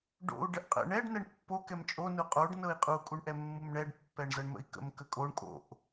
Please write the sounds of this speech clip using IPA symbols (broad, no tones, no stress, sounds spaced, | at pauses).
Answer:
ɖ o̰ u̯ ɖ ə ʔ qʼ ə̰ ɳ ɛ ɖ n ɛ ɳ pː o k ɛ m t͡ʃʼ o n u qʼ o ɖ n ɤ i̯ qʼ u kʼ u ɳ ʔ ɛ mː u m ɳ ɛ ɖ pː ɛ ɳ z ɤ ɳ m ə̰ i̯ k ə̰ m k ə kʼ o ɳ kʼ o̰ ʔ